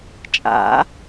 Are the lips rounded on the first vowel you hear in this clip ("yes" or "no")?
no